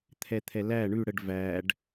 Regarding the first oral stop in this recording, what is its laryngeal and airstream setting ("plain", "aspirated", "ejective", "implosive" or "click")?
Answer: aspirated